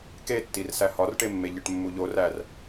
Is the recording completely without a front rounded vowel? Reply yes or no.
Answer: yes